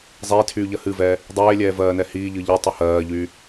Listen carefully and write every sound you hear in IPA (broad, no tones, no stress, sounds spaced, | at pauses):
zˤ eː tʰ yː ʎ ɜ h ɨ v ɛː | dˤ eː lʲ ɛː v ɜː n ɛ h iː ʎ ɨː ʎ i tˤ y h ɜː ʎ yː